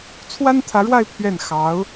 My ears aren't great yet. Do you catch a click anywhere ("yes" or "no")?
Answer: no